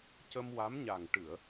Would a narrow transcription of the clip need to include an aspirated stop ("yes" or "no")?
no